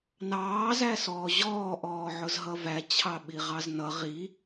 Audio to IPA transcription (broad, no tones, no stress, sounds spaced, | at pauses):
n ɑː z æ s ɔː ʑ ɔː ʔ ɔː ʕ ʊ z ɦ ʌ v æ t͡ɕʰ ɑ ɓ i ʁ ɑ z n ʌ ʁ i